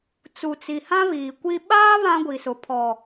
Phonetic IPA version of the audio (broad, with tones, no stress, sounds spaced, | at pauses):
t͡s u˨ t͡s i˨ h ã˦ β iː˨ kʷ i˦ ɓ aː˦ β ã˦ ɡʷ i˨ s ʊ˨˦ pʰ ɔ˨